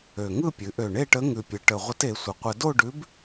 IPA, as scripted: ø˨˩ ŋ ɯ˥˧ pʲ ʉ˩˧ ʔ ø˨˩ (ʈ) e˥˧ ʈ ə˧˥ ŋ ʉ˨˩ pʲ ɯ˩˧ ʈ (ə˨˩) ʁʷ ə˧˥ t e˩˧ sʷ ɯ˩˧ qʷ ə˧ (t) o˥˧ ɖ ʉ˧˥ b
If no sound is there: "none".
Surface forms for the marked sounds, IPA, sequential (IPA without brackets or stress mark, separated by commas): ɳ, ə˨˩, d